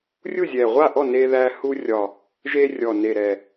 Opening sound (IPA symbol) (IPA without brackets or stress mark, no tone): rʲ